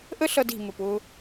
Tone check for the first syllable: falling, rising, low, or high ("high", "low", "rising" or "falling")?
high